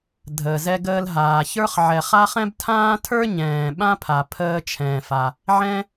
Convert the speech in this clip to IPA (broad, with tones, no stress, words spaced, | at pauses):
dʱəː˩zɛ˧ɡəː˧l ɦaː˩çə˞˥χ ʕɛ˩ χa˥χɛ̃˥b tʰãː˥tʰə˞˥ ɲɛ̃ː˩ɓã˥pʰa˩pʰəː˧ t͡ʃʰɛ̃ː˩fa˩ | ʕɛ̃˥